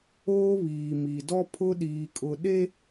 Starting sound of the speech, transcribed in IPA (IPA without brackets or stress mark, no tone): oː